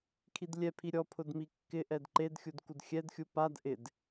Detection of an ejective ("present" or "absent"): absent